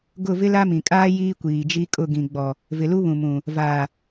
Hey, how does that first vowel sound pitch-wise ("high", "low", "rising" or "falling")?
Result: falling